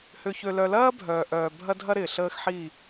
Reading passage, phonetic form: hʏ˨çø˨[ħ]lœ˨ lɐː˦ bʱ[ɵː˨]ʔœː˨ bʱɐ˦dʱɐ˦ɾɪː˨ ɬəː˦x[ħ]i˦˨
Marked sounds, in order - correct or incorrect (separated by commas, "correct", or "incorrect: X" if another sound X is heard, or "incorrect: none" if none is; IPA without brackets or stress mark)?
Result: incorrect: none, incorrect: œː˨, correct